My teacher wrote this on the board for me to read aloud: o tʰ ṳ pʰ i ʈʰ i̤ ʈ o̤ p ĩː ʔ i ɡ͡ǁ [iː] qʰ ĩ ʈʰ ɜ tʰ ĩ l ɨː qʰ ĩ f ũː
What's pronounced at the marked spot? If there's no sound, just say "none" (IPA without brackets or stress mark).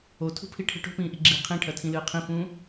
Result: iː